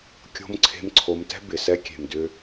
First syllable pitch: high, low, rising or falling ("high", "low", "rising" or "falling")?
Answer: rising